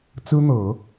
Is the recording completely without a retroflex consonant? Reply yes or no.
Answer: yes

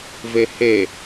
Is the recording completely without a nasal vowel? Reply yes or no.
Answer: yes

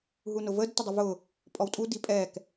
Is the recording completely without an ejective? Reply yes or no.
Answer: no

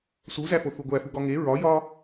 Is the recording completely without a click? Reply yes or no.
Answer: yes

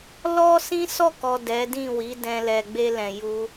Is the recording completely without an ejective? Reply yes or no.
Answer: yes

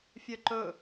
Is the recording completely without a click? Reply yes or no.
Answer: no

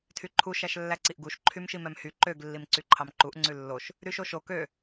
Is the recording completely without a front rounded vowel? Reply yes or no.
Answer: no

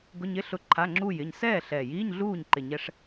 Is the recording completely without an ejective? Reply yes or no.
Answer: yes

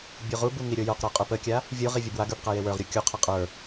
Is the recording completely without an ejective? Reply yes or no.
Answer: no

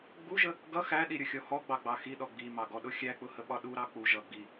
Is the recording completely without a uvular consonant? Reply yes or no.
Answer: yes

